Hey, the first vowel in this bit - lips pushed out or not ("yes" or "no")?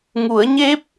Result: yes